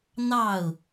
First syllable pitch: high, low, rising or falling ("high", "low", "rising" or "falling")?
falling